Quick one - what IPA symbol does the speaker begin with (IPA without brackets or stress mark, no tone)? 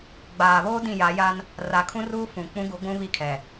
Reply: ɡ͡b